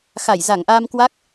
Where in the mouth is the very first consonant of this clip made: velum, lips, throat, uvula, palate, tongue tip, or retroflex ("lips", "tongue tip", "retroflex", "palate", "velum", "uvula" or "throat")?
velum